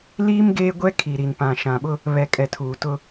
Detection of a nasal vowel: present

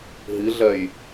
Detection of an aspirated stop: absent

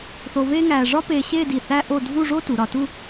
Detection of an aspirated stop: absent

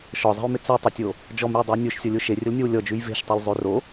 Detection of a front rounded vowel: absent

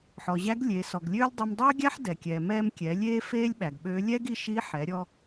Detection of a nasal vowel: absent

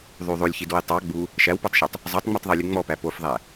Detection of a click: absent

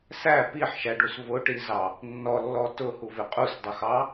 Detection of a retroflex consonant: present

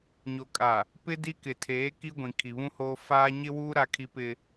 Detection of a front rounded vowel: absent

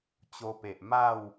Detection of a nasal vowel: absent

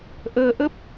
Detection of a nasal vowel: absent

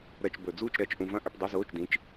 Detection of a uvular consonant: absent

